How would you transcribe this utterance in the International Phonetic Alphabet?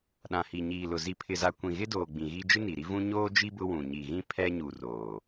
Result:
ɗ ã˨ h i˨ ɲ iː˨ l ʊ˨ z i˨ pʰ ɪ˨ z a˨ kʷ ĩ˨ ɣ ɪ˦ d oː˨ ɡ͡b ĩ˨ ɣ iː˦ d͡ʒ ɪ˦ n i˨ ɾ i˦ v ũ˦ ɲ oː˦ d͡ʒ i˦ b ʊ˦ w ũ˨ ɲ i˨ ɣ ĩ˦ pʰ ɛ˦ ɲ u˨ r oː˨

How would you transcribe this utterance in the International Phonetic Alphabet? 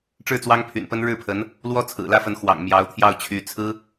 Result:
ʈ͡ʂ ɻ̩˥˩ t͡s w ɑ˥ ŋ pʰ y̰˨˩ n p ə˥ n ɻ ɻ̩˥˩ pʰ ə˧˥ n | l w ɔ˥ t͡sʰ ɹ̩˨˩ l ä˥ f ə˧˥ n x w ɑ̰˨˩ ŋ m j ɑ˧˥ ʊ̯ t̪ʰ j ɑ˥˩ ʊ̯ t͡ɕʰ y˧˥ t͡sʰ ɹ̩˥

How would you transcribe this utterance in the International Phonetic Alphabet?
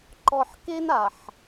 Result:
ǃ ɔ˨ ħ k e˦ n a˨ ħ

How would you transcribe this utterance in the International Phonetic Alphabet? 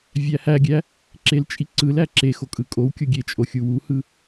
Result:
vʲ æ h æ ɡʲ æ | ǁ e l t͡ʃʼ i ǀ ɯ l æ ǁ e x o kʼ ɯ kʼ o w kʲ o ɡʲ e t͡ʃʼ o xʲ u w u h ɯ

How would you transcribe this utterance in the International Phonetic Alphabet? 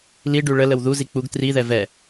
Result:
l i ɖ ʉ ɭ ə l ə w ð u z i k͡p u ɡ t r i ð ɛ v ɛ

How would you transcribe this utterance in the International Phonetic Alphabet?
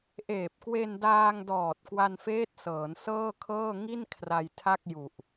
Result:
ʔ eː˨˩ p̚ k w e˧ n d aː˧ ŋ d ɔː˨˩ t̚ k w a˧ n f eː˦˥ t̚ s ɤː˩˦ n s ɤː˥˩ kʰ ɤː˥˩ ŋ i˥˩ n kʰ r a˧ j tʰ a˥˩ k̚ j u˨˩ ʔ

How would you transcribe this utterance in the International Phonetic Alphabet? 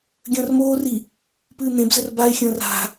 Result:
ɡʲ ə̃ː r m oː r i | p ɨː n̪ ẽ b z ə r b a ɪ̯ xʲ ə̃ː r a̤

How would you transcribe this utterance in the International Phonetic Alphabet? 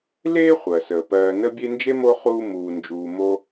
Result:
l eː˥ χʷ ɜ˩ s əː˩ p ɜː˨ n ə˦ bʲ e˦ n d͡ʒ e˥ m o˦ χ uː˦ m uː˨ n d͡ʒ uː˨ m o˥

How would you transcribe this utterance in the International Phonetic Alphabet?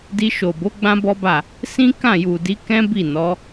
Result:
d i˧ ʃ o˨ b o˨˦ ɡ͡b ã˦ b ɔ˦ b a˦˨ | s ĩ˦ k ã˦˨ j u˨ d i˨˦ k ɛ̃˦ b i˦˨ n ɔ˨˦

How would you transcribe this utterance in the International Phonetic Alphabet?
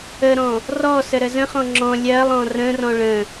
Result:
ə ɾ ɔ̃ | r ɔ s ə ɾ ə z ə̃ χ ɔ̃ ŋ͡ǁ ɔ̃ lʲ ɜ lˠ ɔ̃ r ə̃ r ɔ̃ ɭ ə̃

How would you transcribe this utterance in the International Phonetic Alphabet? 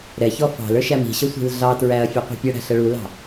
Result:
ɾ ɛ ç ɔ f ɑ̤ l ə˞ ʃ æ m i̤ ɕ ʌ sʷ i̤ l ɮ ɑ t ɹ æ ɐ̯ fʲ ɔ qʷ ɛ̤ pʲ ʌ ɽ æ̤ ɬ ə ɭ u l ɑ̤

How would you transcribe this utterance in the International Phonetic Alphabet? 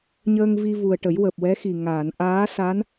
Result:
ɲ əː˧ ŋ v i˧ v u˨˩ ə̯ ʈ ə˨˩˦ j w əː˨˩ p̚ w ɛ˧˥ x i˨˩ ŋ aː˨˩˨ n ʔ aː˧˥ s a˧˥ n

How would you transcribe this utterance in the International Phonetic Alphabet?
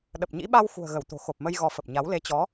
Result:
ɗ ə˨˩ p̚ ɲ ḭ˧˥ ɓ a˧ w x ṳ˨˩ ə̯ ɣ ə˧˩ w t̪ o̤˨˩ x o˨˩ p̚ m ə˧ j ɣ ɔ˨˦ f ə˨˩ p̚ ɲ a˨˦ w l e˨˦ t͡ɕ ɔ˨˦

